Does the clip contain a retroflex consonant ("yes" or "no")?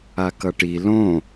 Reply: yes